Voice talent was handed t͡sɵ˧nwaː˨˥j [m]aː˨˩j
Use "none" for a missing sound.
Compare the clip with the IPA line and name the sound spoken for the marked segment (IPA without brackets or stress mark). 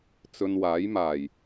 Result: m